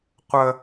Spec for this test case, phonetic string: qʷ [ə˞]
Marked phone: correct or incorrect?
incorrect